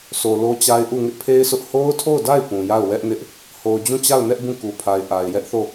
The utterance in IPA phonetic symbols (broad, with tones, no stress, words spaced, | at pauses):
sʰo˨lo˦t͡ɕa˦ɪ̯ʔu˦˨ ŋɪ˦ʔpʰe˦ɪ̯sʰʊ˦ʔ ho˦ʊ̯tʰo˦˨ʊ̯da˦˨ɪ̯ pũ˨ja˦˨ʊ̯ wɛ˦ʔnɪ˦ʔ | ho˨ʊ̯d͡ʑũ˦˨t͡ɕa˦˨ʊ̯nɛ˦ʔ bũ˦˨ku˨pʰa˨ɪ̯ ʔa˨ɪ̯ jɛ˦ʔθo˦˨